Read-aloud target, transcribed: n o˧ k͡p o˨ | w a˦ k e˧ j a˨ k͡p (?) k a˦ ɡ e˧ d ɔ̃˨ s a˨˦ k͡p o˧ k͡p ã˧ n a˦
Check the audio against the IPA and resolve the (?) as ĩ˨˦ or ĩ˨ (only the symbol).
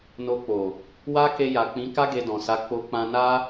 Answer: ĩ˨˦